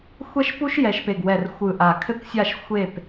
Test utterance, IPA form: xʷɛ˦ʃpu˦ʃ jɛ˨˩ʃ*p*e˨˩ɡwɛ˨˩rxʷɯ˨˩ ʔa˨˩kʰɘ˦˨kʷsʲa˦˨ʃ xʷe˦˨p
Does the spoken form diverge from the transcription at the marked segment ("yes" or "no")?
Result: no